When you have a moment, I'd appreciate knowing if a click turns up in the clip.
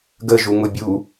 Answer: no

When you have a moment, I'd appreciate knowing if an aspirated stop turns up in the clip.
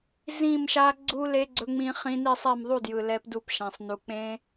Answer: no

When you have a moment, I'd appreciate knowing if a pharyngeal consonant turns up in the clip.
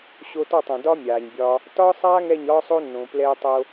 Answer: no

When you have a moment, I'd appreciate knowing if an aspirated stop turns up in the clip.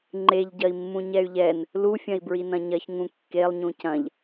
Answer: no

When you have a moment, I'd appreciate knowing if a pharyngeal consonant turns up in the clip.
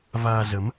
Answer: no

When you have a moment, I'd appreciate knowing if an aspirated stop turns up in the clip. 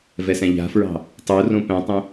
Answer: no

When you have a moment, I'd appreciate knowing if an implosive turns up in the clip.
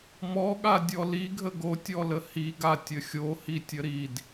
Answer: yes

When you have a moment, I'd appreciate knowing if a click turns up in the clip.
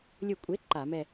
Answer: yes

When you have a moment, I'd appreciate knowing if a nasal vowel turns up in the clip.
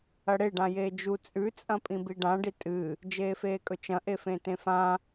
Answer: yes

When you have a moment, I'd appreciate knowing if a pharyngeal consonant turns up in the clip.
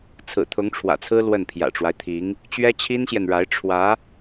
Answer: no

